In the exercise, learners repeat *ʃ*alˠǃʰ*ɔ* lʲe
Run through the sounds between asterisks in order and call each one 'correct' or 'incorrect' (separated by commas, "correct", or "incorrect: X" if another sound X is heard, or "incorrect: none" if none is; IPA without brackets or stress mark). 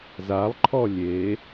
incorrect: z, correct